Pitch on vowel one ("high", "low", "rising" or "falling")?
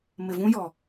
low